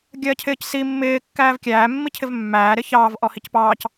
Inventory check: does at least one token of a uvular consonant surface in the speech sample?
no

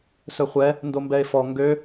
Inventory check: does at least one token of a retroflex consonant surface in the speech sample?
no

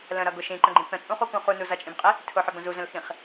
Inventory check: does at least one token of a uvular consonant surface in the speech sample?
yes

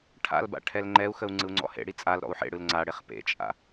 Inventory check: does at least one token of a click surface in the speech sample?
yes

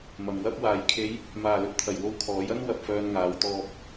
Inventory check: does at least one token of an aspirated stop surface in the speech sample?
yes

